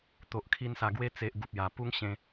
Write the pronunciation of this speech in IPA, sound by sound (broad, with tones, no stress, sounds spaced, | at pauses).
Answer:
t̪ o˨ ʔ kʰ i˧ n s a˨˩ ɡ w e˧ t͡s e˨ ʔ ɡ u˨ p̚ j a˨˩ p u˦ ŋ ɕ ẽ˧